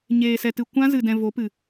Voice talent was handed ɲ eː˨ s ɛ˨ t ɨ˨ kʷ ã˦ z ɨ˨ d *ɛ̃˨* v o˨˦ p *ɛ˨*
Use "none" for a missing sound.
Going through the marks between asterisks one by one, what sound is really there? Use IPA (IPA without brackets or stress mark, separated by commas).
ɛ̃˨, ɨ˨